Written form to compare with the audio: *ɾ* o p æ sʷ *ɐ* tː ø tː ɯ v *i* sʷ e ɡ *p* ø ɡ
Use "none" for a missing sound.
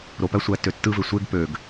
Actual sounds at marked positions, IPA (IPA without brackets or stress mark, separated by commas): ɾ, æ, e, p